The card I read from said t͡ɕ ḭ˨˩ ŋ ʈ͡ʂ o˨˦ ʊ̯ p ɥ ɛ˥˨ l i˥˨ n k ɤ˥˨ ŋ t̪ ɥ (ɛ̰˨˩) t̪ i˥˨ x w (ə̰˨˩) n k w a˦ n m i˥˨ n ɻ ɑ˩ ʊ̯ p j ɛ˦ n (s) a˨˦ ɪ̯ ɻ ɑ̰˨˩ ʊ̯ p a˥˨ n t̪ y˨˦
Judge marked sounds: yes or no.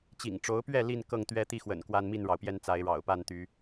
no, yes, no

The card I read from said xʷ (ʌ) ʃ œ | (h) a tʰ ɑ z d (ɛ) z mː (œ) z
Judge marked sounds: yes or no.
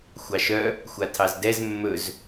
no, no, yes, no

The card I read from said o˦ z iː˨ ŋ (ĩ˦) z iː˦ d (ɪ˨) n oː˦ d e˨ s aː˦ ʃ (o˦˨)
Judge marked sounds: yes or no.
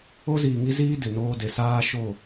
no, yes, yes

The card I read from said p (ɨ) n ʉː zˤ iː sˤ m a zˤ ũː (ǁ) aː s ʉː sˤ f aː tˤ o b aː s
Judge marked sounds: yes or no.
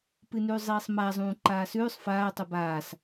yes, no

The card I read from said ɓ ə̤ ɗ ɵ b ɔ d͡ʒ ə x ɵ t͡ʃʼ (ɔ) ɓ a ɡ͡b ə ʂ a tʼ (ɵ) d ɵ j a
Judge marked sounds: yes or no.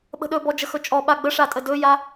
yes, no

